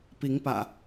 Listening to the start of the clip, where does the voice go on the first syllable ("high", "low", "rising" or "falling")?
rising